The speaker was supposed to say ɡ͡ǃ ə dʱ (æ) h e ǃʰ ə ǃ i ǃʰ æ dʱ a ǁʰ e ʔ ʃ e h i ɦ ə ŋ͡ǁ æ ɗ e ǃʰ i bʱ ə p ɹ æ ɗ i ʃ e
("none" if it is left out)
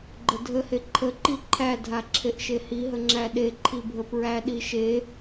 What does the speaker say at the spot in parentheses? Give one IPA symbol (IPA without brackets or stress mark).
ə